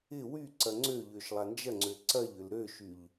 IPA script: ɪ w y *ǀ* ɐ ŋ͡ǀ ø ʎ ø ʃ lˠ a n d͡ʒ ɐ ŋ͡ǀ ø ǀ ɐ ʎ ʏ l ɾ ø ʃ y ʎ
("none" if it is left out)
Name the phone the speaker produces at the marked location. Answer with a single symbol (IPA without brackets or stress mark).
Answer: ǀ